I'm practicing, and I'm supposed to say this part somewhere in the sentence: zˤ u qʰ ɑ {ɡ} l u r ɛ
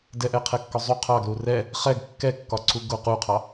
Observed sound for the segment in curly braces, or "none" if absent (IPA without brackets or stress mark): ɡ